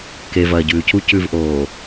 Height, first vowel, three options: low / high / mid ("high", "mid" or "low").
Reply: mid